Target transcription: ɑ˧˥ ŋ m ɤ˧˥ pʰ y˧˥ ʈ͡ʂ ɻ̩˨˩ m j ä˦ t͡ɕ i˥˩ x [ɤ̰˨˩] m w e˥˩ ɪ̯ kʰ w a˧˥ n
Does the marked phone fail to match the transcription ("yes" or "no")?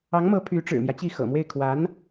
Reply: no